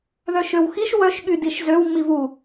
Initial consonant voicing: voiced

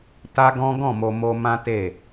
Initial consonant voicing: voiceless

